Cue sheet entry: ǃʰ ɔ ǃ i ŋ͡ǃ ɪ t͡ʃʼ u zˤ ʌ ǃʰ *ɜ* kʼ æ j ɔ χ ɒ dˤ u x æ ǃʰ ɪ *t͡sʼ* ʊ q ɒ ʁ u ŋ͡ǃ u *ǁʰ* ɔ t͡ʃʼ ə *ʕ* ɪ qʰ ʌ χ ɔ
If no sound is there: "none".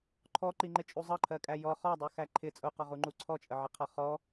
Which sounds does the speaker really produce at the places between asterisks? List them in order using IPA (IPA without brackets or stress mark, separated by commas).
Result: ɜ, t͡sʼ, ǀʰ, ʕ